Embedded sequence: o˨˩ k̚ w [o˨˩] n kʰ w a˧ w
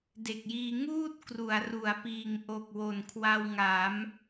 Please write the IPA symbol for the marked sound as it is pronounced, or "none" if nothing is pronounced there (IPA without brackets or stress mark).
o˨˩